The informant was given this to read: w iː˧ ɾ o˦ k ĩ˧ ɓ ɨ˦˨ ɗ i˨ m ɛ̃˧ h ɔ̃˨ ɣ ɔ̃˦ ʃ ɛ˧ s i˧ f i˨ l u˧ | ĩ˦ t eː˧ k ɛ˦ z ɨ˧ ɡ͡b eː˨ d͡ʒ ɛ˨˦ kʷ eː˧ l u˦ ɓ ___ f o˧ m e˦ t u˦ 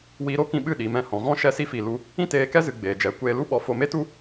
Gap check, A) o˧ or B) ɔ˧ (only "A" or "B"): B